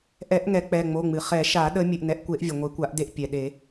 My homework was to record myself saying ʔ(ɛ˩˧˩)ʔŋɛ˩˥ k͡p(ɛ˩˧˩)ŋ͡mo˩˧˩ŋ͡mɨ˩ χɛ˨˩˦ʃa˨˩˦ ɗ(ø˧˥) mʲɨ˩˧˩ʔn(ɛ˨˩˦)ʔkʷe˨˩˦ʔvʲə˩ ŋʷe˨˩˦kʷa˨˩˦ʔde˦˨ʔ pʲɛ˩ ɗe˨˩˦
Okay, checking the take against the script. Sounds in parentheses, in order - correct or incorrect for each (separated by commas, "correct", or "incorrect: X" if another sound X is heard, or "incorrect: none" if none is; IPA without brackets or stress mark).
incorrect: ɛ˨˩˦, correct, incorrect: ə˧˥, incorrect: ɛ˩˥